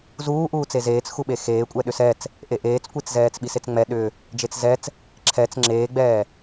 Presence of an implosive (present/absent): present